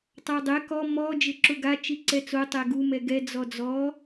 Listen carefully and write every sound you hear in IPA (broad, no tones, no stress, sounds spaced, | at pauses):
tˤ a dˤ ɛ k ɔ m ɔ d͡ʒ ɪ ǁ ʊ ɡ a t͡ʃ i ǀ ɛ t͡s o tˤ ɛ ɡ u m ɛ ɡ ɛ d͡z ɔ d͡z ɔ